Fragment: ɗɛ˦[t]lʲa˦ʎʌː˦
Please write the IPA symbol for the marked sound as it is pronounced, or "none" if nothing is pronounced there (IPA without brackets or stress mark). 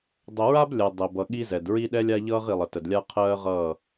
none